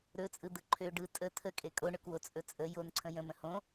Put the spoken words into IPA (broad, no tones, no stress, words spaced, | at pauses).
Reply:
ɾɵt͡sʼɯ d̪ɯǃʰø ɖɯ tʼə t̪ʰə kʼekʼoɳøkwo t͡sʼɵt͡sʼə jonǀʰə̃ jə̃mə̃ hõ